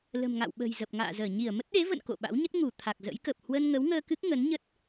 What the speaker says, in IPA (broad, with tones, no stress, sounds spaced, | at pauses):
l ə̤˨˩ m ŋ a̰˧˨ w ɓ ə̤˨˩ j z ə˨˩ p̚ ŋ a̰ː˧˨ z əː˧˩ ɲ i˧˩ ə̯ m ə˦˥ t̚ ɗ e˨˦ v ə̰˧˨ n k o̰˧˨ ɓ a̰˧˥ w ɲ ə˦˥ t̚ ŋ u˧˩ t̪ʰ a˨˩ k̚ z ə̰˧˥ j k ə˨˩ p̚ h w ə˧ n ŋ ə˨˦ w ŋ əː˧ k ɨ˦˥ k̚ ŋ ə˨˦ n ɲ ə˦˥ t̚